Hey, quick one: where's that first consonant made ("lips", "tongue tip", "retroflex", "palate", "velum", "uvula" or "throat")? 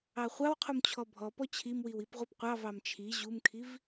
uvula